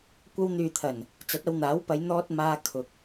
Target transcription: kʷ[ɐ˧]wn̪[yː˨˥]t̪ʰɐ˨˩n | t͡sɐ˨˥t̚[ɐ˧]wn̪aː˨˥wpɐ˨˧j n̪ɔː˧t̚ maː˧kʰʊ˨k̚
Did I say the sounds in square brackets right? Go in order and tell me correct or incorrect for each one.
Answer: correct, incorrect: yː˨, incorrect: ɐ˨˧

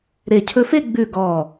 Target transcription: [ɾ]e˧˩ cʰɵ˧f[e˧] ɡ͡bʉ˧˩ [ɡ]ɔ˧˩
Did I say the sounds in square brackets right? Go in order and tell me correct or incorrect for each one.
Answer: correct, incorrect: e˥˧, correct

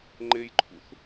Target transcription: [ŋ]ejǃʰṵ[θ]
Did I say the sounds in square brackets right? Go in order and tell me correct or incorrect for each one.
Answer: incorrect: ŋ͡ǃ, correct

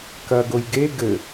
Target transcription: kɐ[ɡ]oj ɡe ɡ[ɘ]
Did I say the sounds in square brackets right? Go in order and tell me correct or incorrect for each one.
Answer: correct, correct

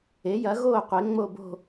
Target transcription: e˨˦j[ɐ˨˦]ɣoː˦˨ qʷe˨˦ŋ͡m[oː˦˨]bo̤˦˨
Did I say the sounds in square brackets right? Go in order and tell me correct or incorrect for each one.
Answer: correct, incorrect: o˦˨

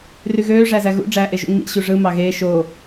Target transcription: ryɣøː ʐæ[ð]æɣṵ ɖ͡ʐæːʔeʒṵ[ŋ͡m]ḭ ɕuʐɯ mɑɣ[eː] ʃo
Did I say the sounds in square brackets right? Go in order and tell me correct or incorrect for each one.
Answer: incorrect: z, correct, correct

